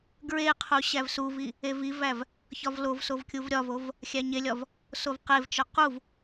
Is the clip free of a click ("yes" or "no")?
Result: yes